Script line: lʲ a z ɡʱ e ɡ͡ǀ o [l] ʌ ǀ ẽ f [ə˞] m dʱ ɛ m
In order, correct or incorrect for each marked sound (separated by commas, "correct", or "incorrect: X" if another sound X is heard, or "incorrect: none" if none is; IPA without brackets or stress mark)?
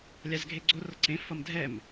incorrect: r, incorrect: ʌ